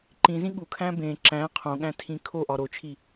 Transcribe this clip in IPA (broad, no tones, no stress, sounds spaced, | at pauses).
ǃ ĩ z ĩ ɠ u kʰ æ̃ b ẽ ǁ æ̃ qʰ õ ɠ æ̃ tʰ ĩ kʰ o ʔ ɒ ɾ o t͡ʃʰ i